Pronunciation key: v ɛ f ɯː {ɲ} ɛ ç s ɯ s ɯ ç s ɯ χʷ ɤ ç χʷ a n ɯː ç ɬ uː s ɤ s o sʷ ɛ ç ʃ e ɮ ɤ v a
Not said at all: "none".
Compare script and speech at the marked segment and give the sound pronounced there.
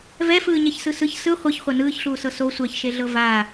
ɲ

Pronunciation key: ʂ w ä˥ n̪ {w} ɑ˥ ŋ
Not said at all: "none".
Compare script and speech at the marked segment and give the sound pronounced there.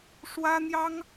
j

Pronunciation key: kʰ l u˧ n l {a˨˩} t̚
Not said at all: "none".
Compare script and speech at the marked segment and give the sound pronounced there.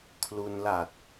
a˨˩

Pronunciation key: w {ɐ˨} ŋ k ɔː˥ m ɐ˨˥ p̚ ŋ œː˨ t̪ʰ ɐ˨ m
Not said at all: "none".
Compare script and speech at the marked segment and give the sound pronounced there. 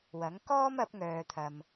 ɐ˨˥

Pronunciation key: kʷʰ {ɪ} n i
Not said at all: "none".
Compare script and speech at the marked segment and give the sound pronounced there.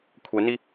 ɛ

